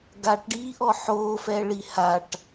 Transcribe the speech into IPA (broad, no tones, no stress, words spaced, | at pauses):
ɡaʈɖiːʔɔ ħoːfɛɭi haʈ